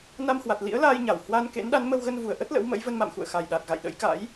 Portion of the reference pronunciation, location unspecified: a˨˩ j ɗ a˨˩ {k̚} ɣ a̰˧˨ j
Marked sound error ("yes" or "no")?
yes